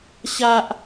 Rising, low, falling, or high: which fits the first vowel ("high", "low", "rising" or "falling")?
high